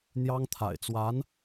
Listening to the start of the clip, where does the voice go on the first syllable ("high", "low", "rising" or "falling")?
high